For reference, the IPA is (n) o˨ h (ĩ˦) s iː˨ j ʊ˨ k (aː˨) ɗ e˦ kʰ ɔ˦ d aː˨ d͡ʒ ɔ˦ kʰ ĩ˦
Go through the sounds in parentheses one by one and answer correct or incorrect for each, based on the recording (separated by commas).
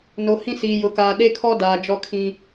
correct, correct, correct